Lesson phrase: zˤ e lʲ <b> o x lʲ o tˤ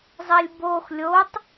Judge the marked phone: correct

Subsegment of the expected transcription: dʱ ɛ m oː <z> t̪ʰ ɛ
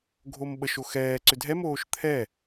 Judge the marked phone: incorrect: ʃ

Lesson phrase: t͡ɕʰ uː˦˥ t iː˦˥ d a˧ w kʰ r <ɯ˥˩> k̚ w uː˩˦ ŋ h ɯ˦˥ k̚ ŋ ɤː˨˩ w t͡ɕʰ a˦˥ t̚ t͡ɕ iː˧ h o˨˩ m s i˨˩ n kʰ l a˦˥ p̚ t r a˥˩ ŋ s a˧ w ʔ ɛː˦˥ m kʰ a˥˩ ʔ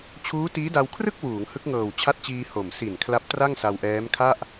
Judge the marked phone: correct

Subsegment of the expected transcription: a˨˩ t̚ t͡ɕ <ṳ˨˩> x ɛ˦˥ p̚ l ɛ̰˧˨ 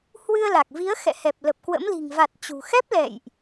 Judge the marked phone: correct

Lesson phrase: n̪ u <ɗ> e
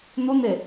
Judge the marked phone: incorrect: n̪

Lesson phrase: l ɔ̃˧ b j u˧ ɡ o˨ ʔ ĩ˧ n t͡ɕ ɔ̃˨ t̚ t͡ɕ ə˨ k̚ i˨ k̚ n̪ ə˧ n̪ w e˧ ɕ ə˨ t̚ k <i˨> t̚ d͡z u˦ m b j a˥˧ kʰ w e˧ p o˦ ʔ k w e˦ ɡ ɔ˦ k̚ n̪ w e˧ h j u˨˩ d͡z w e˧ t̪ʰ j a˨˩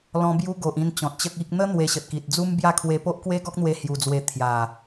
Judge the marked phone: correct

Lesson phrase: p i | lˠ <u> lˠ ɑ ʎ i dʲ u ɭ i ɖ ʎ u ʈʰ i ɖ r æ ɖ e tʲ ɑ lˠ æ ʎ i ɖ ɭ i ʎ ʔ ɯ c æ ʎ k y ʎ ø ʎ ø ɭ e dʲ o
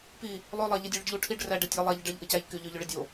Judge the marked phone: incorrect: ø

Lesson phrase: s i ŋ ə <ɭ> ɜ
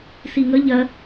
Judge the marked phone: incorrect: ʎ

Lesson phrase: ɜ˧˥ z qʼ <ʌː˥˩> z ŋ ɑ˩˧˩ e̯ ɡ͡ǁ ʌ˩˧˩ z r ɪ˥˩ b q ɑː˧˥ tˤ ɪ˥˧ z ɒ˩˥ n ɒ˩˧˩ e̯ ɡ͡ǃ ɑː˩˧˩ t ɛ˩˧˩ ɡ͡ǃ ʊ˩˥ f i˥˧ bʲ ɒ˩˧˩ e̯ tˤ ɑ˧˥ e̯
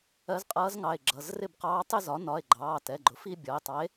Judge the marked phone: incorrect: ʌː˧˥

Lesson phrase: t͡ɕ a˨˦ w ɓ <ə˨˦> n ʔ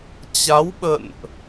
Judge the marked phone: incorrect: ə̰˧˨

